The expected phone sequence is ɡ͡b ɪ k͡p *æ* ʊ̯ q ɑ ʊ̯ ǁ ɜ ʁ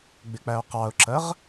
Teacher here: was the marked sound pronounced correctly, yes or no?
yes